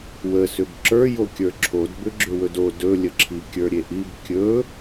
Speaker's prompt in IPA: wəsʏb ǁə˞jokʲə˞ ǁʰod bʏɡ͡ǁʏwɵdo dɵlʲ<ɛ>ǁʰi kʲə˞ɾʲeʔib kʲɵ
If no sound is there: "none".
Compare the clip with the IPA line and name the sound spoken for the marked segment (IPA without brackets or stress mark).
ə